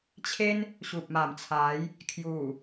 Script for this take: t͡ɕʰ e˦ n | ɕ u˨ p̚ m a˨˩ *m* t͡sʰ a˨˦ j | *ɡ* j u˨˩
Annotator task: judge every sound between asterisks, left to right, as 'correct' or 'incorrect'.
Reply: correct, incorrect

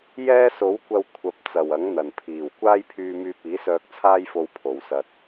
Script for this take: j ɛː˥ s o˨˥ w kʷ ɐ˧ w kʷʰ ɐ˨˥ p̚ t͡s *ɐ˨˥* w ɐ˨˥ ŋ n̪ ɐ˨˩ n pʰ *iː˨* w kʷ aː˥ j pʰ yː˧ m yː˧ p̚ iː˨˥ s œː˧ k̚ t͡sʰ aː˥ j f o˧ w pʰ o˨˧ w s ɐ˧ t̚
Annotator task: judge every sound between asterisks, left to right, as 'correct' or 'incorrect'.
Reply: incorrect, incorrect

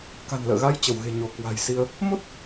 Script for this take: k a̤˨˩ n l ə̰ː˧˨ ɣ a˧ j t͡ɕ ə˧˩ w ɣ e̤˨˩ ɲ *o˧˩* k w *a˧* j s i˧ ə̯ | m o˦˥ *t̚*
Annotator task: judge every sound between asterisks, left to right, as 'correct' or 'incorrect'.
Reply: correct, incorrect, correct

